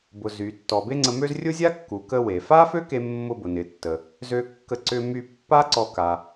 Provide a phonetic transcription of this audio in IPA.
b ʊ˩ z y˩ tː ɔ˩ b e˥ ŋ͡ǀ ə˧ m ø˥ z rʲ ʊ˥ zʲ a˥ kː u˩ k ə˧ w e˩ f a˥ f ø˥ k e˧ mː ʊ˧ b ʊ˩ n ɪ˩ tː ə˩ | z ø˧ kː ə˧ ǀ ʏ˧ m y˧ pː a˥ ǀ ɔ˧ k a˩

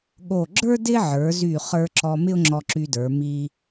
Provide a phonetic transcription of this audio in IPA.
ɠ o˧˩ ɡ͡ǁ ə˞˥ d ɪ˥ ʕ ə˞˩˧ z y˧˩ χ ə˞˧ ǁ ɔ˧ m ɪ˥ ʊ̯ ŋ͡ǁ ɔ˧ ǁ y˧ d ə˞˩˧ m i˧

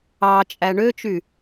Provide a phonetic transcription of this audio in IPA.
ɑ t͡ʃʼ æ ɳ ø t͡ʃ y

